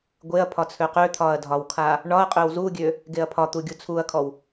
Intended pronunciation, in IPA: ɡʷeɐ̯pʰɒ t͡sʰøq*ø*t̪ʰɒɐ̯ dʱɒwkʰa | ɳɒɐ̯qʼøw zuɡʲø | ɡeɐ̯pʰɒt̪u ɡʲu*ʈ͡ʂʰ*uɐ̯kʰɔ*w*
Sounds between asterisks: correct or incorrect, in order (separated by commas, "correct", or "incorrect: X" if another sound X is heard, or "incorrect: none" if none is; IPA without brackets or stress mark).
correct, incorrect: t͡sʰ, correct